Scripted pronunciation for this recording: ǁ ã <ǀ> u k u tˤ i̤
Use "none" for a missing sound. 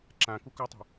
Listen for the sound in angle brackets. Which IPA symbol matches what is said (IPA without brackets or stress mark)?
k